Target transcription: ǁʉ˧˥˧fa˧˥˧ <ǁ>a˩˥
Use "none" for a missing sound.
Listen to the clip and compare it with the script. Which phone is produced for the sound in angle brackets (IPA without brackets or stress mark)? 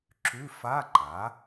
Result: ǃ